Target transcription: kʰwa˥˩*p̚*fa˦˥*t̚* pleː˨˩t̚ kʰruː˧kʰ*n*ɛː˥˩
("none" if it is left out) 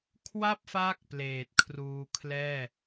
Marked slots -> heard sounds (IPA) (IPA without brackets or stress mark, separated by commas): p̚, k̚, l